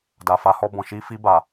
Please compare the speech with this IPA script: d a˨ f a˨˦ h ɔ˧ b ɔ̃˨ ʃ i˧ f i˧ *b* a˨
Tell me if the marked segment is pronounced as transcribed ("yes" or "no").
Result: yes